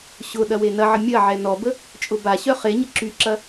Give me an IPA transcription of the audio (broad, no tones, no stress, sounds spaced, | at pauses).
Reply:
ɕ ʊ ɗ ɐ w e n ɐ ʕ ə mʲ ɐ ʕ ɛ n ɔ b ə | t͡ʃʼ ʊ b a ɕ œ χ e ɲ ə ǁ y ǁ ɐ